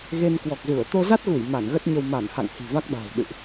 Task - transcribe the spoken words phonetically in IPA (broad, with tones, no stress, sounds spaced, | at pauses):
ɣ e˧ n k w ɔ˨˩ k̚ z u˧˩ ə̯ t̪ o˧ z a˦˥ t̚ ɣ u˧˩ j m a˧˩ n ɣ ə˦˥ t̚ ɲ ə˧ w m a˧˩ n h a̰˧˨ ŋ h i̤˨˩ v a˦˥ k̚ ɗ a̤ː˨˩ w ɗ ɨ̰˧˨ ʔ